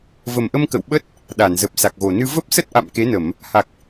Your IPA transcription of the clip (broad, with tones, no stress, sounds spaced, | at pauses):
v ə˨˩ m ʔ ə˧ m k ə̰˧˨ w ɓ ə˦˥ t̚ | ɗ a˧˩ n z ə˨˩ p̚ s a˨˩ k̚ ɣ o˨˩ n ɨ˧ v ə˦˥ p̚ s ə˦˥ t̚ ʔ a̰˧˨ m k e˨˦ n ə˧˩˨ m | h a˨˩ k̚